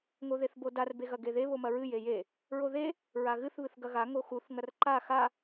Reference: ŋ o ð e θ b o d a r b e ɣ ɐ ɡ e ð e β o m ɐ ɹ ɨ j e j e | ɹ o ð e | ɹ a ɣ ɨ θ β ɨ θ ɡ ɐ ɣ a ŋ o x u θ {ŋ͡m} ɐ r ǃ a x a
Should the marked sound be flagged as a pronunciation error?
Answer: yes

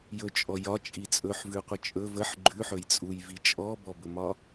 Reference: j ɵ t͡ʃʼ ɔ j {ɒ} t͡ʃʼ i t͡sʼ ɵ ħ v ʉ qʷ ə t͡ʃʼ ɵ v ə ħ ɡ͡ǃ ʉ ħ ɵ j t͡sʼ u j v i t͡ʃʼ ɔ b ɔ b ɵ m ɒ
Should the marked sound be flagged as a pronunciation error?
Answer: no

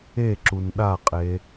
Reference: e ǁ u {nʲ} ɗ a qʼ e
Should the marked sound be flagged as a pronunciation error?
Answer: yes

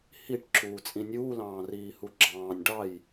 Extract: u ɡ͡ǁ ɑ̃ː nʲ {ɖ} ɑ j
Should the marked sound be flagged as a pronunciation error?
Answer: no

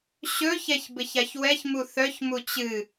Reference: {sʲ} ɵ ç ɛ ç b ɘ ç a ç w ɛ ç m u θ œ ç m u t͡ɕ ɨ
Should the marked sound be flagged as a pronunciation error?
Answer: yes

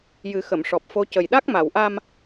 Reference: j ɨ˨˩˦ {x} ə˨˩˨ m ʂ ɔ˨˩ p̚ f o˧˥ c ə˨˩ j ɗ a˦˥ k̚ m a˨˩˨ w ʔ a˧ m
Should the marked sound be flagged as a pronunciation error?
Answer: no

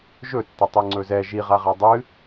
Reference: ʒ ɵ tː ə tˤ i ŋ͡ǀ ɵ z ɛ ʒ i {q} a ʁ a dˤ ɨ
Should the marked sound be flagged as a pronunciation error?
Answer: yes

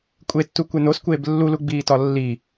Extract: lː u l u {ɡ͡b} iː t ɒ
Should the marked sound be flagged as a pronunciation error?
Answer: no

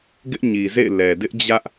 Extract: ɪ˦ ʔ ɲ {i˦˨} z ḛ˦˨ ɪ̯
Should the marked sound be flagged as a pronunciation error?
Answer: yes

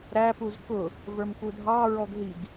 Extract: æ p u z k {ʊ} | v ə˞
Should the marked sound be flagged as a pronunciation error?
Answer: no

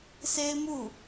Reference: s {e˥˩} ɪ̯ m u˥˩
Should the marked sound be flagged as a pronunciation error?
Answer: yes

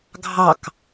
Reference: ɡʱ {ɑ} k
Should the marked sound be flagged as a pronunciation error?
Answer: no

